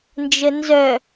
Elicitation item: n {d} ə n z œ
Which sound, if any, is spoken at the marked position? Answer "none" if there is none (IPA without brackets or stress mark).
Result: d͡ʒ